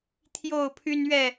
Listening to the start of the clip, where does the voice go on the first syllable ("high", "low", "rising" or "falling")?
falling